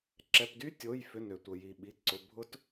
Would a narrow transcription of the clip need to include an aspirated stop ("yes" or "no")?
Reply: no